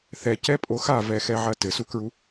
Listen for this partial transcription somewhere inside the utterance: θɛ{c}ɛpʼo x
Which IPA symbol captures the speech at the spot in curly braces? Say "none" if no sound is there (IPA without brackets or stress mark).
c